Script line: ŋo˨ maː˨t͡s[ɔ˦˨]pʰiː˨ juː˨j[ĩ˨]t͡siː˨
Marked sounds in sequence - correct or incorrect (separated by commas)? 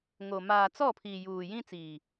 correct, incorrect